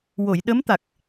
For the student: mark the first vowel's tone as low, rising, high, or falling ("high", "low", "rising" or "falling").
low